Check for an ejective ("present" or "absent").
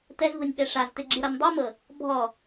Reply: absent